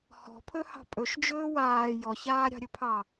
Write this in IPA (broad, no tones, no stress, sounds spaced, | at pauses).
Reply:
h ɔ̤ pʰ ɵ h ɑ̤ pʼ ɵ ʃ d͡ʒ ɵː w aː j ɔ ç aː ɾʲ ɑ̤ ɾʲ ɵ pʰ ɑ